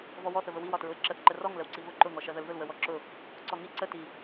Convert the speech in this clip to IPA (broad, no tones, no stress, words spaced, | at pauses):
vɔwɔθəvə wiw ɒtɹʊɪ̯ǁəθǃə rɔŋ ləwǀivʊ ǃʊ ŋɔʃɜðəlðʊl wəwɔǁʊ | ǀɔŋi ǀəti